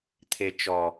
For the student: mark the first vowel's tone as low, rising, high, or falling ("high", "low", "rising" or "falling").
low